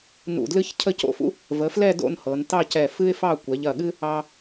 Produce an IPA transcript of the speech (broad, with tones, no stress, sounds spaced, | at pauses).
n ṵ˧˩ d l ɨ˥ ç cʰ ə˥˧ c o̰˥ f ṵ˥ | v ə˩˧ f l ɛ˥˧ d o̰˥˧ n h ɤ˩˧ n t ɑ˥˧ c ɛ˧˩ f ɨ˥ ɪ̯ f ɑ˥˧ kʷ ɛ˩˧ ʎ ɐ˧˩ ɠ ɨ˥ | ɑ˧